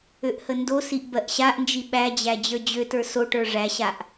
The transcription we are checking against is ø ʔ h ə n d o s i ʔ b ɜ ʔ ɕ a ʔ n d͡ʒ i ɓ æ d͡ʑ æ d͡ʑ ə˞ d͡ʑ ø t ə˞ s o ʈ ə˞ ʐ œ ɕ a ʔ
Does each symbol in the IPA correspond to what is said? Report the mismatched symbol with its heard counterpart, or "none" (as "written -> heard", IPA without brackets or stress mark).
œ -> æ